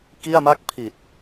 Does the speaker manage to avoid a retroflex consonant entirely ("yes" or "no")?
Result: yes